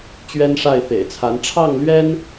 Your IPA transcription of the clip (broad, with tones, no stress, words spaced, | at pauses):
t͡ɕɥɛ˥nʂa˥˩ɪ̯ fḛ˨˩ɪ̯t͡sʰa˧˥n ʈ͡ʂʰɑ˥˩ŋlɥɛ˥n